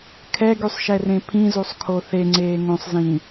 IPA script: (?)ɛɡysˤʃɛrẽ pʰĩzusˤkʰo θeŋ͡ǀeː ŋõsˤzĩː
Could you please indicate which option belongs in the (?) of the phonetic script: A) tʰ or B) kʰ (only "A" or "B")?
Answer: B